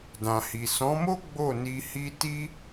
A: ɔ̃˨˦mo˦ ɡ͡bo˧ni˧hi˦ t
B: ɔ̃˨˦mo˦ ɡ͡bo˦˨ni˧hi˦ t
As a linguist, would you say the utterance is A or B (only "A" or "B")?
B